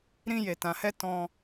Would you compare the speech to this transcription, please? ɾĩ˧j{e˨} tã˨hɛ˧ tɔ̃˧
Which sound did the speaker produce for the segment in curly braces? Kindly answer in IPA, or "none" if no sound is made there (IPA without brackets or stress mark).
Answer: e˨